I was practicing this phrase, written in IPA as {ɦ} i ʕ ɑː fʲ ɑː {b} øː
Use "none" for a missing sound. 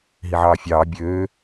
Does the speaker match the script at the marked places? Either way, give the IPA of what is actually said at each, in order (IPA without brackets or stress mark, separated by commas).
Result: ɦ, bʲ